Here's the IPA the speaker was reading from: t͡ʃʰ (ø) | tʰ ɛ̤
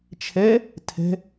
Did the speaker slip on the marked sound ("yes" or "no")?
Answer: yes